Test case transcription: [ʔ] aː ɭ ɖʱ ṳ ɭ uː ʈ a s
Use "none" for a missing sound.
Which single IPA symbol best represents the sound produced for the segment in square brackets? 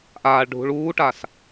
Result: ʔ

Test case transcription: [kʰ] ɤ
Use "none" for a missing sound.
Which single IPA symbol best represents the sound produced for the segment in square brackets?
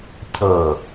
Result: cʰ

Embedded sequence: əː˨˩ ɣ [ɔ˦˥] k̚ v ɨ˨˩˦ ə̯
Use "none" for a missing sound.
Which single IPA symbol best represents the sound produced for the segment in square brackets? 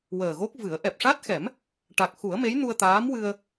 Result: o˦˥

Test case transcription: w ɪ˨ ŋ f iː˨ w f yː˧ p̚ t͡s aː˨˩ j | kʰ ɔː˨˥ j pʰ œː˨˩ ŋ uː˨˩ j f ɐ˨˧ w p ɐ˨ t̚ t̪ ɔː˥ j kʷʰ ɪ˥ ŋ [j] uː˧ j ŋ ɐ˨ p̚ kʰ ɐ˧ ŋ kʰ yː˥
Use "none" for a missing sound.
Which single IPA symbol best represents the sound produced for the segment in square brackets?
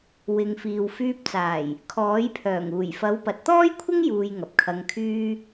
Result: j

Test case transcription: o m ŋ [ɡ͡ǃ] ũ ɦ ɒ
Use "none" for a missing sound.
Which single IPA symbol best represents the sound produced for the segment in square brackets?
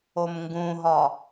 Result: ɡ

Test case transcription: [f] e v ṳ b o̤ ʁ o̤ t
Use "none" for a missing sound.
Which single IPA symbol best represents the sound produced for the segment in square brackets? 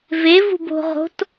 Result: v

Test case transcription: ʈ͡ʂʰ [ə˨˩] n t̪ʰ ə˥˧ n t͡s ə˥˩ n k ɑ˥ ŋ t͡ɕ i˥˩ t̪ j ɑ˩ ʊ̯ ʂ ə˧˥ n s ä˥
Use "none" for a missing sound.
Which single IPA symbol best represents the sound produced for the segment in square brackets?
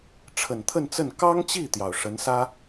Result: ə˨˩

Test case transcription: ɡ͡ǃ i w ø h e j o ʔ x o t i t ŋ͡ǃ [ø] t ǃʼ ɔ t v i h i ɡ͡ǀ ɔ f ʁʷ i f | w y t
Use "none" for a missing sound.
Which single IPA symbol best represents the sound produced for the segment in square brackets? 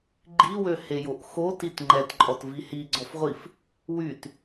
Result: ɛ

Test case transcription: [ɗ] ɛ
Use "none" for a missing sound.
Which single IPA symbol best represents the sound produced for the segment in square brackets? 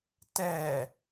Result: t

